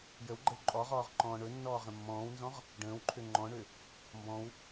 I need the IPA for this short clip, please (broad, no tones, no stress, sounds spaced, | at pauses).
j ə w ɡ͡ǃ ə w ǃʼ ɔ ʁ ɔː ʁ ǃ ɔ̃ː ɳ ɵ nː ɔː ʁ ə̃ mː ɔ̃ː w n z ɔ̃ ʁ | ɖ ə̃ː w ǃʰ ø ŋ͡ǃ ɔ̃ ɳ ø | m b ɔ̃ w